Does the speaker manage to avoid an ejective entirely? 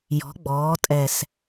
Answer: no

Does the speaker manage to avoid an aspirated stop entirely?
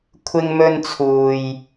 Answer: no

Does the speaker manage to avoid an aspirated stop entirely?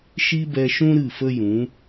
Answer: yes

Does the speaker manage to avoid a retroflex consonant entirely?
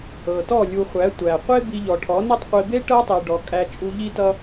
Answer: no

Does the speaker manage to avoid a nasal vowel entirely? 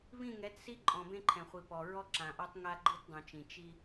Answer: no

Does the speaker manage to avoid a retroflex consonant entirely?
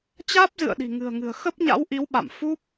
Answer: yes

